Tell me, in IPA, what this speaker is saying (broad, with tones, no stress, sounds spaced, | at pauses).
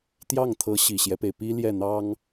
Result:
t̪ j ɑ˥˩ ŋ t̪ʰ ɤ˧˥ ɕ i˨˩ ɕ j ɛ˦ p e˩ ɪ̯ p i˥ l j ɛ˥˩ n̪ ɑ˥ ŋ